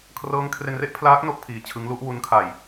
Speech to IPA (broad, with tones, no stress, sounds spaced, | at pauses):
kʰ r ɤː˦˥ ŋ kʰ r e˧ n r e˥˩ ʔ pʰ l aː˦˥ k̚ n o˥˩ k̚ pʰ iː˧ t͡ɕʰ ɯ˦˥ ŋ l u˦˥ ʔ w u˦˥ n kʰ a˧ j